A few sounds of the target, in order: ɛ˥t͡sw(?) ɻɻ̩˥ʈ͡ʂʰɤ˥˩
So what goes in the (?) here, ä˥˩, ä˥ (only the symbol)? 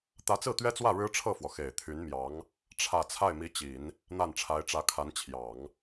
ä˥˩